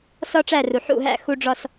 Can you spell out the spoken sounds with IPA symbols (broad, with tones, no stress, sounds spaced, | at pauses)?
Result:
s ɒ˦ ʈ͡ʂ æ˦˨ r u˨ ħ ṵ˦˨ ɦ æ̰˦˨ x u˦ ɖ͡ʐ ɒ˦ s